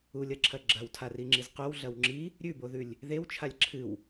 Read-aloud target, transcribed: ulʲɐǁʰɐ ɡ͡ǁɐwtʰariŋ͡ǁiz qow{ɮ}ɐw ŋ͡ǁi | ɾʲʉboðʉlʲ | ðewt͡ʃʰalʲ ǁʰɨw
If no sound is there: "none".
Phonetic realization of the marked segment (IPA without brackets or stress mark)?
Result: ɮ